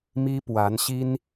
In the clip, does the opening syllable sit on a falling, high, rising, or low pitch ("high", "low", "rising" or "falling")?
high